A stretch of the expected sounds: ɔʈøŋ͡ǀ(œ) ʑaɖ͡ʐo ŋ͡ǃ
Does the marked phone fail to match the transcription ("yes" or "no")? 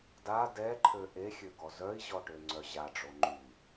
no